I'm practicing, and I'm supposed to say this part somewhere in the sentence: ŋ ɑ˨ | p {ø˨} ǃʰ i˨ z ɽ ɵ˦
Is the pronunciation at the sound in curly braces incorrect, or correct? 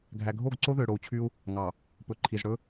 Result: incorrect